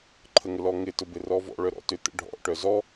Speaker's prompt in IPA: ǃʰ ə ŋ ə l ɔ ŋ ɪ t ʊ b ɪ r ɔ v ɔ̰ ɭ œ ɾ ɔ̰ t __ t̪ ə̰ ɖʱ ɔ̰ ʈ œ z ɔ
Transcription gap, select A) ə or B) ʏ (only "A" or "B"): B